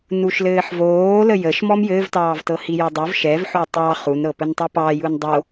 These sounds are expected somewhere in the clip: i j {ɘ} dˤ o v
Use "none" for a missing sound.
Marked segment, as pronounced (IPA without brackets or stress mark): ɘ